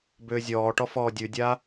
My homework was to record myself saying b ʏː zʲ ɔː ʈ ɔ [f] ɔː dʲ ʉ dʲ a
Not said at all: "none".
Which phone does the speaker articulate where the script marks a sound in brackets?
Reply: f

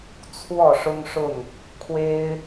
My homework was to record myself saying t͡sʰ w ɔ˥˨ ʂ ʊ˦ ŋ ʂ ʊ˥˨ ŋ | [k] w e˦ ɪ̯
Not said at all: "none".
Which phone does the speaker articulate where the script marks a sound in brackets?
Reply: kʰ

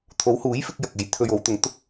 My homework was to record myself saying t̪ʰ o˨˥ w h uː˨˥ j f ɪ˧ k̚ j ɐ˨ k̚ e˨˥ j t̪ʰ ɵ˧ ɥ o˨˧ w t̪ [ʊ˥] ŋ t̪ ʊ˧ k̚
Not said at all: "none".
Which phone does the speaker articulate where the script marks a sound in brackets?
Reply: ʊ˨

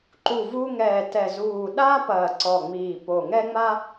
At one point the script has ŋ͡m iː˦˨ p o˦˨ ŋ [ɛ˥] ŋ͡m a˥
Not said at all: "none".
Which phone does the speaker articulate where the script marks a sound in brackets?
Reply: ɛ˥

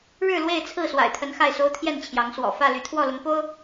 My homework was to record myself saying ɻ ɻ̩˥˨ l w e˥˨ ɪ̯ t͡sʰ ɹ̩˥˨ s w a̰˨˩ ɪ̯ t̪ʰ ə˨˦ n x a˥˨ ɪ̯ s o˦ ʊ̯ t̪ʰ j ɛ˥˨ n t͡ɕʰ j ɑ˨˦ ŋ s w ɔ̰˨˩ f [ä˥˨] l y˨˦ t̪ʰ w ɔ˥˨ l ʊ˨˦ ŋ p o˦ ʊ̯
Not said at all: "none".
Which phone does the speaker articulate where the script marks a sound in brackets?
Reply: ä˥˨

